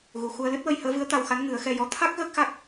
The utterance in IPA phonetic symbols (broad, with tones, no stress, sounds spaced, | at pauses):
ɣ u˨˩ x u˧ ə̯ l ɨ˦˥ t̚ w ə˧ j h əː˧˥ v ɨ˧˥ ə̯ t̪ a˧ w x a˧˥ n ŋ ɨ˨˩˦ ə̯ x ɛ˧ j ɔ˧˥ t̪ʰ a˦˥ k̚ ɣ əː˦˥ k̚ x a˦˥ k̚